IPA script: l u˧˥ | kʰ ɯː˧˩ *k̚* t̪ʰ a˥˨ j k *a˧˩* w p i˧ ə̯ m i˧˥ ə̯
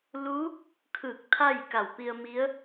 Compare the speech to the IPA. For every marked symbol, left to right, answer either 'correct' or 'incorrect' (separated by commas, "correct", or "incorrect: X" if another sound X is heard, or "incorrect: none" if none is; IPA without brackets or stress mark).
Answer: correct, correct